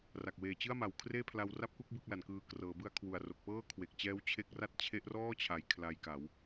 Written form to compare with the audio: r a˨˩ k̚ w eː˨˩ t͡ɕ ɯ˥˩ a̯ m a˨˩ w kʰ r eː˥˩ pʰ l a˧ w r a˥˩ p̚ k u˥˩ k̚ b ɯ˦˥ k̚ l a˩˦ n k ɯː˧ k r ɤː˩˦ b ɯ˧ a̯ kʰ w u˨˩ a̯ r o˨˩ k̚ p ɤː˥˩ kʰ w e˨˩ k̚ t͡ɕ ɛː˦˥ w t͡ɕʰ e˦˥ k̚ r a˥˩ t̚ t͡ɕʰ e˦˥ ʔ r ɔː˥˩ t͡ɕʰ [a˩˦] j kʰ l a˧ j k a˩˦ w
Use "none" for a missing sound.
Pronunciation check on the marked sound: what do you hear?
a˩˦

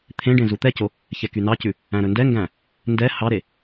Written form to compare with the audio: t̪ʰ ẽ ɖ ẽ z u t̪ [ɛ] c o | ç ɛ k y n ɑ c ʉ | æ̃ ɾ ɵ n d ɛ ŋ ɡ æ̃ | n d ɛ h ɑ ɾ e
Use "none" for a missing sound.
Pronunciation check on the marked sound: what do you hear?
ɛ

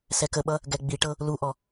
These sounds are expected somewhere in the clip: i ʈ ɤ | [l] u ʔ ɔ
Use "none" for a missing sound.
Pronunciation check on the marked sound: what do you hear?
l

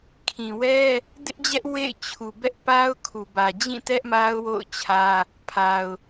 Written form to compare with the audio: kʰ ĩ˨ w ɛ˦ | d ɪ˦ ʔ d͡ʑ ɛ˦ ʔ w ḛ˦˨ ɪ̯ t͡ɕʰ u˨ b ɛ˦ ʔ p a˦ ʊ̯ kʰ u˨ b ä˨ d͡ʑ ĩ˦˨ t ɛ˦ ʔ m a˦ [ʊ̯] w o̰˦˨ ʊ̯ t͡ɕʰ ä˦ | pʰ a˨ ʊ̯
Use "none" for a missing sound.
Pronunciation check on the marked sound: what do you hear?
ʊ̯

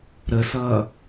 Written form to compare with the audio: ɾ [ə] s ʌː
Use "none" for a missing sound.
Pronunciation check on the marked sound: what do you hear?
ə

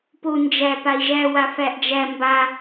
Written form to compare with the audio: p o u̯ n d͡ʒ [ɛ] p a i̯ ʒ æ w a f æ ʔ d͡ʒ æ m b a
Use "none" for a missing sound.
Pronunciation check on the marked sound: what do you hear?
æ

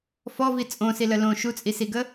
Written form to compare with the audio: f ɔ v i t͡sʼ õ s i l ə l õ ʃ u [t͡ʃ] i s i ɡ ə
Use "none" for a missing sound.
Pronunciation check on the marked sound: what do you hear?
t͡sʼ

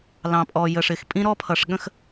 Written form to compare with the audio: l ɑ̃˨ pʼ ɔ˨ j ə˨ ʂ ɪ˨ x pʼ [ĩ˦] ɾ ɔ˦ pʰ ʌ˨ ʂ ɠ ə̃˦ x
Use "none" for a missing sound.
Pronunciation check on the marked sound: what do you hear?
ĩ˦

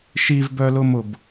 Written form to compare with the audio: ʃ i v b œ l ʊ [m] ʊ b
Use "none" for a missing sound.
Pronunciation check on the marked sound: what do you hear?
m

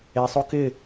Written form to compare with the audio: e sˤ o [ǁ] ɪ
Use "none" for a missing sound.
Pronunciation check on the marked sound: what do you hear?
k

